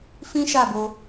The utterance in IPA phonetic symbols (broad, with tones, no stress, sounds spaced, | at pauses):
f ĩ˦ ʃ a˦˨ b o˧